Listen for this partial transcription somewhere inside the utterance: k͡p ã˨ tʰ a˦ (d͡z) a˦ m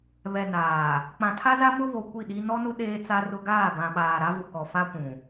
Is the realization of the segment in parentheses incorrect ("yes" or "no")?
yes